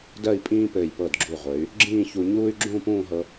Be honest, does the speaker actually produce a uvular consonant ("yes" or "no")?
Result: yes